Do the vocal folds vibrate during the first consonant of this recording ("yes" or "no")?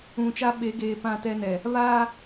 no